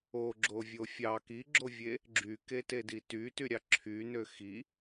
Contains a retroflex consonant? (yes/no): no